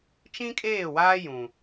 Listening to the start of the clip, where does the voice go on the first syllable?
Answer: high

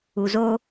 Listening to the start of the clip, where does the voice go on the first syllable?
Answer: low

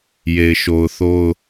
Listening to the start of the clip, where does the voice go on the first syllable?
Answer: low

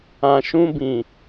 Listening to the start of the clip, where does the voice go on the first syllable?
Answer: low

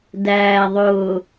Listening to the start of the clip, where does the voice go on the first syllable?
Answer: low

